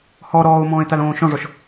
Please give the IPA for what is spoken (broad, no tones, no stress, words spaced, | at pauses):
hɔ ɾɔːʊ̯mɔ̃ːɪ̯talõː ʃɔ̃ʐɔʃ